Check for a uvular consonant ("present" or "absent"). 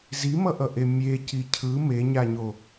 absent